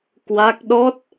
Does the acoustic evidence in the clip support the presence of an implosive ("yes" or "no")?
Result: yes